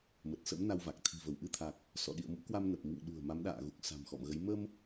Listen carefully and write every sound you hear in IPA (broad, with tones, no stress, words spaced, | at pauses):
mə˨˩t̚sə̰˧˥m na˧wva˨˩k̚ t̪ʰi̤˨˩və˧˩wʔɨ˧t̪ʰa˨˩k̚ | sɔ̰˧˨ɗḭ˧˨ə̯mṵ˧˥kwa˧m nə˨˩p̚mḭ˧˨ŋ ɗṳ˨˩ə̯ ma˨˦mɗa̰ː˧˨ɣu˨˩k̚ sa̤˨˩m xɔ̰˧˨mɣə˨˦j mə˧m